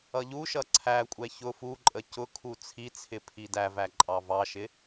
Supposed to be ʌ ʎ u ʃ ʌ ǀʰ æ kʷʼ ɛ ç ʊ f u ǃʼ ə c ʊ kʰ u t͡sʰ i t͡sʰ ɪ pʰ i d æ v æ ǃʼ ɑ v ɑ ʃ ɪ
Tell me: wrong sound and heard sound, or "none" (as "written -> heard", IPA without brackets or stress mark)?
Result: none